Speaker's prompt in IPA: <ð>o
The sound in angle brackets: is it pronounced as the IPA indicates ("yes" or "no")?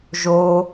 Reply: no